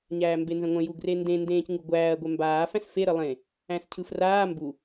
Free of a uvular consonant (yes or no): yes